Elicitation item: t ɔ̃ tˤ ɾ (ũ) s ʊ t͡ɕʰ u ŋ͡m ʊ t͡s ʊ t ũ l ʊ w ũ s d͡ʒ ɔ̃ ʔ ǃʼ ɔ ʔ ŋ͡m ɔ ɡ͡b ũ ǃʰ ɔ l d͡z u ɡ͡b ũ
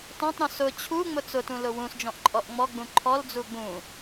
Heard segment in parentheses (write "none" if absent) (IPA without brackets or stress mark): ũ